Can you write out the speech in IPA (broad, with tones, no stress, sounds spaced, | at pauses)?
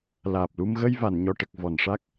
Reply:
l aː˨˩ p̚ l u˧ m ɣ ə˧ j v a˨˩˨ n ɲ ɔ˨˩ ʈ ə˨˩ k̚ v ɔ˨˩˨ n ʂ a˦˥ k̚